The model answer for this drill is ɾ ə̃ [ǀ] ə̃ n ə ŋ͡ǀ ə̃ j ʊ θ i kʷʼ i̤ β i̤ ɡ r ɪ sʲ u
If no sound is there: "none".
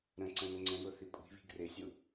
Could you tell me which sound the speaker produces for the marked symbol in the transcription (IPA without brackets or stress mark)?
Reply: ǀ